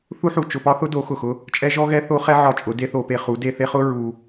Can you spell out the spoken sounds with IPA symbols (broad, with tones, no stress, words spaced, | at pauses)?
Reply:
θu˦ħu˨ t͡ʃʊ˧pɒ˦θʊ˦do˨˦ xʊ˨xʊ˦ | t͡ʃʼɛ˦ʒɔ˦ ɣɛ˦θo˦χɛ˦ ʕɒ˧t͡ʃʼʊ˨˦ de˦ θo˧pe˧χu˨˦ de˧ θe˦χʊ˦ ɹu˧